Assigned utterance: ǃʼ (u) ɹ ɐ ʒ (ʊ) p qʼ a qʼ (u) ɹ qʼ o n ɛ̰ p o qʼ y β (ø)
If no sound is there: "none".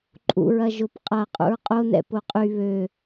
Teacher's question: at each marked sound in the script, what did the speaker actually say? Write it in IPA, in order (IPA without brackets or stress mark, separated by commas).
ṵ, ʊ, ṵ, ø